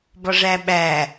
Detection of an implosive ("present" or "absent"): present